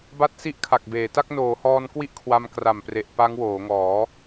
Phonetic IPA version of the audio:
b a˥˩ t̚ s i˥˩ ʔ kʰ a˨˩ k̚ b eː˩˦ t a˥˩ k̚ n oː˩˦ h ɔː˧ n k w i˥˩ ʔ kʰ w a˧ m k r a˨˩ m p r e˨˩ ʔ p a˦˥ ŋ w oː˩˦ ŋ ɔː˩˦

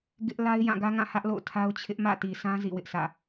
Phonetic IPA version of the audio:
ɡ ɪ˦ ʔ l a˦ ɪ̯ j ã˦˨ ɡ ä˦ ŋ ã˦˨ h ä˦ ʔ l o̰˦˨ ʊ̯ tʰ a˦ ʊ̯ t͡ɕʰ ɪ˦ ʔ m ä̰˦˨ t i˨ sʰ ã˦ z ḭ˦˨ w ɪ˦ ʔ s ä̰˦˨

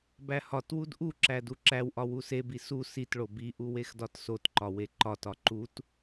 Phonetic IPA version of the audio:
b æ h ɒ t w u d ʔ u ǁ æ d u ǁ æ w ʔ ɒ w u s e b i s u s i t ɭ o b i ʔ u w e x d ɒ t s o t ǃ ɒ w e ǃ ɒ t ɒ ǃ u t

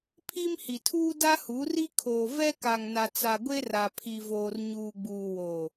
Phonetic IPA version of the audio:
pʰ i˦ m h i˨ tʰ uː˦ d a˦ h u˨˦ r i˦ kʰ oː˨ v ɛ˦ k a˨ ŋ n a˨ t͡s a˨ ɡʷ e˦ r a˨ pʰ i˨ v oː˨ r ɲ uː˨ ɡ͡b uː˨ w o˨

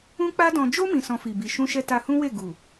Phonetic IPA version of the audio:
ũ˦ k͡p a˦ d ɔ̃˧ d͡ʒ o˦ m ĩ˧ s ɔ̃˧ f i˨ b i˨ ʃ ũ˧ ʃ ɛ˧ t a˧ h ũ˦ w e˦˨ ɡ u˨

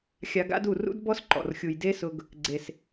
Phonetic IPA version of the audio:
xʲ a˧ ɡ a̰˦ d u˦˨ r ṵ˦ d b ɔ˦ s ǃ ɔ̰˨ r xʲ u˨ j d e˦ s ʊ˧ ɡ | ɡ͡ǀ e˨ s

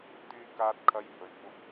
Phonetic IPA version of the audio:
t̪ yː˧ k aː˧ t̚ kʰ ɐ˧ j h ɵ˨˩ ɥ kʷ ɐ˧ p̚

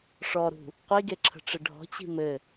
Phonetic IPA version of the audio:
ʂ ɔ ɾ ṳ | qʷ i ɡ e ǁʰ ə̤ ʈ͡ʂ ə ɖʱ ɔ̤ t͡ɕ i̤ m ɘ

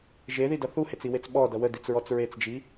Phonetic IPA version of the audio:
ʒ e ð i d ʌ θ u h e t͡s i w e t͡s ɓ ɔ d ʌ w ə d i t͡s ɹ ɔ t͡s ɹ e t͡s d͡ʒ i

